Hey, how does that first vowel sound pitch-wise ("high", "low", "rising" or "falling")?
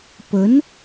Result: rising